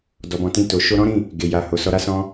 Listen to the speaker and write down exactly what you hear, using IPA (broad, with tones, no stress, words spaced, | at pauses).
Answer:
dɔ˨bɔ̃˨tĩ˧ to˨ ʃo˧ɾɔ̃˦ɾĩ˦˨ | ɡe˨ ja˨ ho˨sɔ˧ɾa˦sɔ̃˦